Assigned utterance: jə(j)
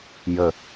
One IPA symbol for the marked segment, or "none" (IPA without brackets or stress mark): none